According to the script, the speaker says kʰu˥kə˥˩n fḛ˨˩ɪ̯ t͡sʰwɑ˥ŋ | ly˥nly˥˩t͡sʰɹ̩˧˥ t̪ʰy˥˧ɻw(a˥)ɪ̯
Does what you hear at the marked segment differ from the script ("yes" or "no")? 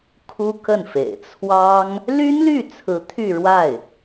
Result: yes